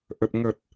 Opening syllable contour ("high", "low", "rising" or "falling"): low